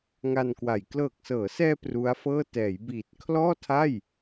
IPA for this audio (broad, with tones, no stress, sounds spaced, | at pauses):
ŋ a˧ n k w a˨˩ j k l ɤː˨˩ k̚ s ɤː˩˦ s ɛː˧ p r u˦˥ a̯ f ɤː˥˩ t ɛː˩˦ j b iː˨˩ t̚ kʰ l ɔː˥˩ tʰ a˥˩ j